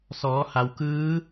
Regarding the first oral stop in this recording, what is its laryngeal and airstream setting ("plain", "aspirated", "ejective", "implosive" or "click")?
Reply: plain